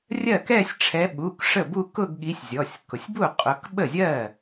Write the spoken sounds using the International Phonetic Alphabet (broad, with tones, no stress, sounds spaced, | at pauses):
rʲ ɜ˥˩ k ɛ˥˧ sʲ ʈ͡ʂʰ ɛ˨˦ ɓ u˩˧˩ k ʂ ə˥˩ b u˥˧ k ʊ˥˧ ɡ ɠ i˨˦ sʲ zʲ ɔ˩˧˩ sʲ k ʊ˩ sʲ b u˥˩ qʼ ʊ˨˦ k ɓ ə˥˩ zʲ ɜ˥˩